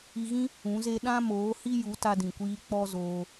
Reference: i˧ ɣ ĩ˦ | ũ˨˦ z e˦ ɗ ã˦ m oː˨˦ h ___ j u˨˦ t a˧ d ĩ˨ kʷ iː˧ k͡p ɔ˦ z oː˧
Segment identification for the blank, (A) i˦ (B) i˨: A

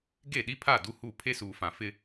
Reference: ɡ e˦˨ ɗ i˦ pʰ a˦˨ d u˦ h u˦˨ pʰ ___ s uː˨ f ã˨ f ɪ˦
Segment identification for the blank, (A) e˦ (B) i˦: A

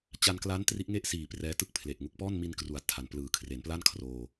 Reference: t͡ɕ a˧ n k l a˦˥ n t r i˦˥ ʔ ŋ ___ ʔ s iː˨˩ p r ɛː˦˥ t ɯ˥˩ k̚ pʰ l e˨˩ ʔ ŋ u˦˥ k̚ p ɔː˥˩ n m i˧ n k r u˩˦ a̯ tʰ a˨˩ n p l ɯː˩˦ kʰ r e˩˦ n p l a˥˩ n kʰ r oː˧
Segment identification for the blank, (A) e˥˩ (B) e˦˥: A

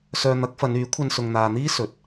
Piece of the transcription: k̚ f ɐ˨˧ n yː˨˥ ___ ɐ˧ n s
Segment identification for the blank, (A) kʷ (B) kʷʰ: B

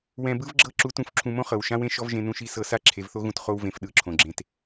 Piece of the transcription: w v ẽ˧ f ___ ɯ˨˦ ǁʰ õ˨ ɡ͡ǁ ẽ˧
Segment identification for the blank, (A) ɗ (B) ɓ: A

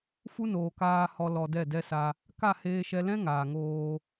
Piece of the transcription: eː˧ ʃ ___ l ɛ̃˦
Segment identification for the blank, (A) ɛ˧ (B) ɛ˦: A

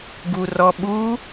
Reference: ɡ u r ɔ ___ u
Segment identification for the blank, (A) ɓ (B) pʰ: A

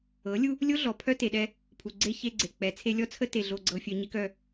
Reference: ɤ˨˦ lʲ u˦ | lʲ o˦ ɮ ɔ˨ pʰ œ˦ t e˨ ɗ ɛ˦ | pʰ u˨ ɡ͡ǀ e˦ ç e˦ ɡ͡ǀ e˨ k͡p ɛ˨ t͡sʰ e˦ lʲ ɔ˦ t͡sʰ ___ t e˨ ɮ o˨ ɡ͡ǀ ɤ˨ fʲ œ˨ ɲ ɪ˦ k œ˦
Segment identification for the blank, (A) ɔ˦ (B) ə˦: B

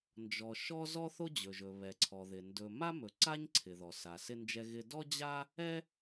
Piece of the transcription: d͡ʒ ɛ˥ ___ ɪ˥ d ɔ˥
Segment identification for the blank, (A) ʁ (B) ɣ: B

